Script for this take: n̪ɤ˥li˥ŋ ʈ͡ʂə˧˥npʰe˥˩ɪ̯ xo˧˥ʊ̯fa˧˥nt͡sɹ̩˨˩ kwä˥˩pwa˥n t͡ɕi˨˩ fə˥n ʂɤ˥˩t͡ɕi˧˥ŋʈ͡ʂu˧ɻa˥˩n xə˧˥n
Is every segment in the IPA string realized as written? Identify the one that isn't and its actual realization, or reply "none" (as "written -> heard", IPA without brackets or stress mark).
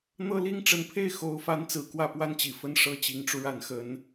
none